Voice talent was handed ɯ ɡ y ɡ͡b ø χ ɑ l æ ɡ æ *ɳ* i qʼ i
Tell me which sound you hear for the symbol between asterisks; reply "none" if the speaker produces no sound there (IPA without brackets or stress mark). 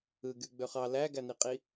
n